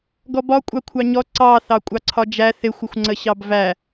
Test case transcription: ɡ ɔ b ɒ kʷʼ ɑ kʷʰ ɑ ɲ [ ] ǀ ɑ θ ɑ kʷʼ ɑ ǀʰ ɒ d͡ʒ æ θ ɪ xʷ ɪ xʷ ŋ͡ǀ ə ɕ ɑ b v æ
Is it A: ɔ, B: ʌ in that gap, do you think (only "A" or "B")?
A